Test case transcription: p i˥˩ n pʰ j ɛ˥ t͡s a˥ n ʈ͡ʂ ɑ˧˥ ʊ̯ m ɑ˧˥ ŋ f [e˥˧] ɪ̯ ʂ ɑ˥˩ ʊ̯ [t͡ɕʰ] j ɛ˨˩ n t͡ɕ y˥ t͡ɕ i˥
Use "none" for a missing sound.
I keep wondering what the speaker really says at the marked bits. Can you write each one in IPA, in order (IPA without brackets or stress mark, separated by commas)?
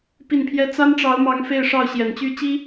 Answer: e˥˧, ɕ